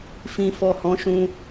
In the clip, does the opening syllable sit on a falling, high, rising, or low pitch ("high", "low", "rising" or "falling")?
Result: low